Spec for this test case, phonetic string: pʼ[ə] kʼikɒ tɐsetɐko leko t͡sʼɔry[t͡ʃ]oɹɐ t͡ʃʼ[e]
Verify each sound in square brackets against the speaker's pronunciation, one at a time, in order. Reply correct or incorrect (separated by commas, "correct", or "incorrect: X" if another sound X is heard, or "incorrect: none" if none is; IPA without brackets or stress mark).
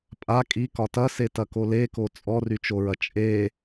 incorrect: a, correct, correct